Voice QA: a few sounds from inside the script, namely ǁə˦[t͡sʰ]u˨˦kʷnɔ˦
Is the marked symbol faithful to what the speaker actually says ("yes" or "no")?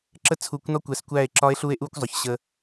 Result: yes